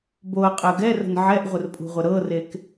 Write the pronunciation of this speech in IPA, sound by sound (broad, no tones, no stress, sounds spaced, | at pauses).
b o ɐ̯ qʼ ɜ ɡ ɛ r ə̤ n ʕ ɛ ʔ ʁʷ ə r pʼ ṳ ʁʷ ə ɾ ɤ r e k